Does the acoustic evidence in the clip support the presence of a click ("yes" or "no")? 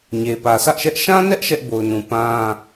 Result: no